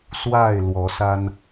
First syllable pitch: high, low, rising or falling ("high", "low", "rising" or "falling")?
falling